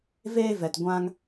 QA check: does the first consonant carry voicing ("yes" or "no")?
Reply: yes